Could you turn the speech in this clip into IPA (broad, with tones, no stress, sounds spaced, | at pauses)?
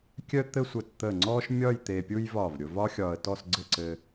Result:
kʲ œ˥ t̪ ɘ˥ sʷ ə˧ t t̪ ə˧˩ ŋ͡ǀ ɔ˥ ʃ mʲ ɒ˥˧ j t̪ e˧ pʲ u˥ j v ɒ˧˩ v ɾʲ ʊ˧ v ɒ˥ xʲ ɒ˧ ə̯ t ɔ˥˧ s ɡ͡ǀ ɘ˥˧ ǀ ɘ˧